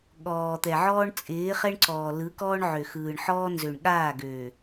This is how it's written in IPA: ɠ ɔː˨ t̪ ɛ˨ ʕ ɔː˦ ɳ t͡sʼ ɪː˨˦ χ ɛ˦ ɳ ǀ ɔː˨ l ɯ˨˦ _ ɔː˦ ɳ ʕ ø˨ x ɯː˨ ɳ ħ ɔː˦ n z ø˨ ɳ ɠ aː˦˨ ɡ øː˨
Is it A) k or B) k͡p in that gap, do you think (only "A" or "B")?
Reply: A